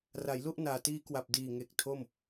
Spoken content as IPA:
ra˩˦jlu˥˩ʔ naː˨˩tiː˦˥kwa˨˩p̚ diː˨˩ŋe˨˩k̚ tʰo˥˩m

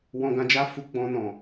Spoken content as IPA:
wɔ̃˧ɡã˧d͡ʒa˦fu˧ ɡ͡bɔ̃˧ nɔ̃˨

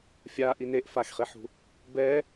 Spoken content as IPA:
fʲa ʔineʔ faxχiħṳ | bɛ

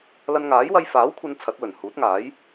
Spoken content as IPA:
lɐ˧nŋaː˨˥jwɐ˧j faː˨˥wkʷʰɐ˨˧n t͡sʰɐ˨˥t̚wɵ˨˩n huː˨˥t̚ŋaː˨˥j

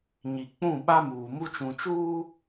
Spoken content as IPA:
ɲi˨k͡pũ˦˨ ɓa˦muː˨ mu˦t͡ʃũ˨t͡ʃuː˦

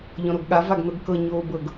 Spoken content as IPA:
ʎɔ̃ɾoɡɠa vaɡnɤɡkɤ ɲoːbɤɡ

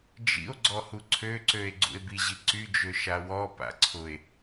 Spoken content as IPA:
d͡ʒḭo̯ ɡ͡ǀɔhuǀʰøǀøe̯ ɡ͡ǀṵe̯biʑi ǀyd͡ʒø ʃawɔpa̰ ǀʰʊe̯

